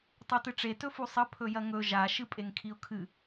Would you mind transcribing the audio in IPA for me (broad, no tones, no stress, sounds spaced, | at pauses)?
tˤ o t ɨ ʈ͡ʂ e t ɵ f u sˤ ɐ pʰ ɵ j ɐ ŋ ɵ ʒ a ʃ ɨ pʼ e ŋ kʰ i ʊ̯ kʰ ɨ